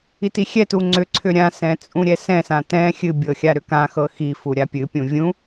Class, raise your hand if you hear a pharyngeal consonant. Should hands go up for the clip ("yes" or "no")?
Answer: no